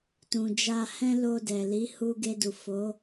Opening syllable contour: low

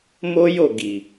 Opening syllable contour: high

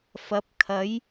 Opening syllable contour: rising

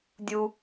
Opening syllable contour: high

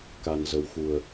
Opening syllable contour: low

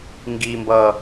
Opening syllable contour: high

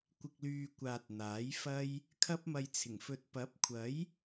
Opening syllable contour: low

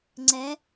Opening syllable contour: rising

